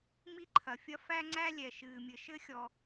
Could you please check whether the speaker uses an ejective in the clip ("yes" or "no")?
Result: no